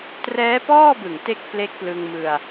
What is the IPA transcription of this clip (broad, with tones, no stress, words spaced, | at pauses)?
trɛː˦˥pɔː˥˩bɯ˨˩ŋ te˥˩k̚ ple˦˥k̚plɯ˧ŋmɯ˧a̯